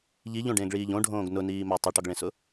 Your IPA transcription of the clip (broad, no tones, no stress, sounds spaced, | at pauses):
ʎ i ʎ õ ɖ ẽː ɡ ɭ iː ʎ õ ɖʱ õː ɡ n ʊ n iː m a tˤ i ʈ ɒ ɡ ɭ ẽ s ʊ